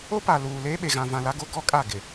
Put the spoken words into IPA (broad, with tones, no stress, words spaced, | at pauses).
o˦pa˨ luː˨leː˦ ɓe˨ɣã˨vã˨ la˦ɡo˦ɡɔ˦kʼa˦˨ ɡɪ˨